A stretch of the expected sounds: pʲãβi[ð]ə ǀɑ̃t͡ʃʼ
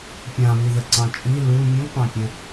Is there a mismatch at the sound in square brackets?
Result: no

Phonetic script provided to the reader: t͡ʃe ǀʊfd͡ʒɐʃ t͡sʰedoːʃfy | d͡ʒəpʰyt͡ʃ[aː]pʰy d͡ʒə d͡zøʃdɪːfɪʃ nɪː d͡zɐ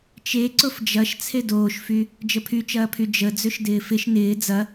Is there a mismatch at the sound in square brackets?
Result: yes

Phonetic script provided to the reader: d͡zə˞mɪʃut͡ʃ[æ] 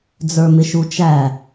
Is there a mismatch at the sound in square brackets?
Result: no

